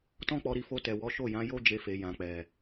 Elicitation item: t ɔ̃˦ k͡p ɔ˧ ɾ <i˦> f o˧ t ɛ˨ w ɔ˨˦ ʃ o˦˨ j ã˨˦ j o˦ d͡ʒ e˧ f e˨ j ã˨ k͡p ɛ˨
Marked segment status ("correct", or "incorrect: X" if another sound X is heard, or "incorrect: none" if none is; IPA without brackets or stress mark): incorrect: i˧